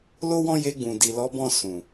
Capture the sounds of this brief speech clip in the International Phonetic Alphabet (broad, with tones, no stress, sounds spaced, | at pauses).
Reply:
l o˦ w ɔ̃˦ j e˧ ɡ͡b ũ˨ d i˨ l ɔ˨˦ b ɔ̃˦˨ s ũ˨